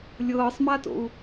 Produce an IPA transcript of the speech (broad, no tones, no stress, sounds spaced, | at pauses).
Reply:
lʲ ɤː sˤ m a t o̰ u̯